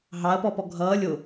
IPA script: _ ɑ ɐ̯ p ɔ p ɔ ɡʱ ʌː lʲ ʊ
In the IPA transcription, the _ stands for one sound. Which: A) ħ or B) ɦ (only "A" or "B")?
B